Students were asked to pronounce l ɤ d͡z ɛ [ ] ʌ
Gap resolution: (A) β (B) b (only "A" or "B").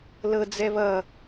A